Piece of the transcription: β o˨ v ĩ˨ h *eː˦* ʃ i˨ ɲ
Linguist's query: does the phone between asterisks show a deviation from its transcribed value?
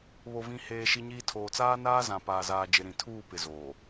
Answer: yes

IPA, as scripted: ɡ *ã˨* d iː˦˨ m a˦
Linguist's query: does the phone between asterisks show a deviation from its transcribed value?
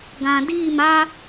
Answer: no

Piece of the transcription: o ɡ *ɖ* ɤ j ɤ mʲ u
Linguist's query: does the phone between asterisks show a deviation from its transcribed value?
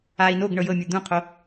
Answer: yes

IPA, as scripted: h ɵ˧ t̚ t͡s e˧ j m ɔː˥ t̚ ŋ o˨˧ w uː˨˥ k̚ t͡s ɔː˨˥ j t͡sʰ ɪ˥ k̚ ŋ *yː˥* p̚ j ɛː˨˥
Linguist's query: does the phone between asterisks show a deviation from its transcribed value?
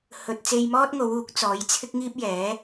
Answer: yes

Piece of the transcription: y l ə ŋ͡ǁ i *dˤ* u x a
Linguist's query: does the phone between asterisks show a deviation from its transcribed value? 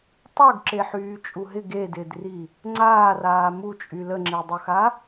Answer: no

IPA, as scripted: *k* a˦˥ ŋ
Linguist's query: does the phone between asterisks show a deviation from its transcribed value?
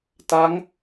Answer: yes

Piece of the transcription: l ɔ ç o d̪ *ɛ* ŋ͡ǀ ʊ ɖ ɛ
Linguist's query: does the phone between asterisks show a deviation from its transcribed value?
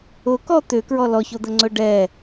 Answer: yes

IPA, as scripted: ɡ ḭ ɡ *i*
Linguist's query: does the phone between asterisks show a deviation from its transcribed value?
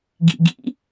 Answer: yes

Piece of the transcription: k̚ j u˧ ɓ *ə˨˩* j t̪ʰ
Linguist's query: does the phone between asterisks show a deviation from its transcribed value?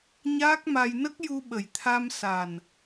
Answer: no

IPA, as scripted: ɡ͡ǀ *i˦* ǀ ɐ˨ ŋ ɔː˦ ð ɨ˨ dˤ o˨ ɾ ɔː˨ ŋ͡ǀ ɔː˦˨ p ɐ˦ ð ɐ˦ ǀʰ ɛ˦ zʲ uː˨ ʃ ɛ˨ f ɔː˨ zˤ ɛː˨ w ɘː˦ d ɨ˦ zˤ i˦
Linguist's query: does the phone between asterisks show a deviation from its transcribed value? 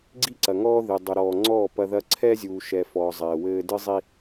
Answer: no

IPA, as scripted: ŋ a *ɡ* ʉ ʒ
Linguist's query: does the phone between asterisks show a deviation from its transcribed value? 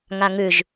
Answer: yes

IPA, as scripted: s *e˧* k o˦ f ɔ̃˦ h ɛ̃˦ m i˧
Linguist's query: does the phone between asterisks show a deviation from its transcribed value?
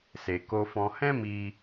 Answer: no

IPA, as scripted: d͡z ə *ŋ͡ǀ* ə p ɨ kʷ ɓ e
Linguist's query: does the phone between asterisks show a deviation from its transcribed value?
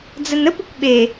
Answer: yes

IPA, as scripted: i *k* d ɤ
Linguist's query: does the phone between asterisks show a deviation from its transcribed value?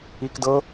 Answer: no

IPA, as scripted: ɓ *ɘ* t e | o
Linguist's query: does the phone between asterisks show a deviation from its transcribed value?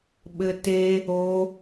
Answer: no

